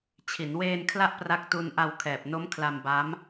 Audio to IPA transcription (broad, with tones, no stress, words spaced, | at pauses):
t͡ɕʰi˩˦nweː˧nkʰla˦˥ʔ pra˦˥k̚tu˦˥n ʔa˧wkʰɛː˨˩p̚no˦˥m kʰla˧mba˦˥m